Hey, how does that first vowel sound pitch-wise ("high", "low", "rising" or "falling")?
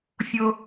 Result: high